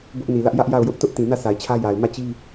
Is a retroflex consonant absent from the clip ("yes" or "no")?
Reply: yes